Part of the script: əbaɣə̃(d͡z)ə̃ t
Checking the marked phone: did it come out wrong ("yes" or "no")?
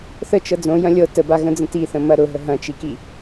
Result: no